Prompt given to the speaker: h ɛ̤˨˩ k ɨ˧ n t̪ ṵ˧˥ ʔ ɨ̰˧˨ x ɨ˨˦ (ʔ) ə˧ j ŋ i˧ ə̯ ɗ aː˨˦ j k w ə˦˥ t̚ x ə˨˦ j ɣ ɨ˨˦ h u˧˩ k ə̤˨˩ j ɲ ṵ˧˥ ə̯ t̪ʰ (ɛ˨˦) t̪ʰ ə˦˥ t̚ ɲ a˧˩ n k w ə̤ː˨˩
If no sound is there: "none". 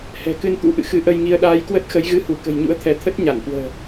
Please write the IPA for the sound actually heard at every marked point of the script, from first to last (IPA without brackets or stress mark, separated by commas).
ʔ, ɛ˨˦